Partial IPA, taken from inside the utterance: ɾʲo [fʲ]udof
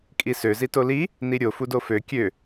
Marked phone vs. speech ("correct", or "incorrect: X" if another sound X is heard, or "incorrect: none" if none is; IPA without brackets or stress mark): incorrect: f